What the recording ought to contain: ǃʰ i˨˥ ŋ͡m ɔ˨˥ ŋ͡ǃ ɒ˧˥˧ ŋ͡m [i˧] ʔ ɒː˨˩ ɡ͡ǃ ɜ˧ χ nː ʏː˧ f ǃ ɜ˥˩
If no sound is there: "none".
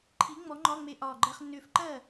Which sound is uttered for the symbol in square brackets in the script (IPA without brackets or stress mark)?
e˧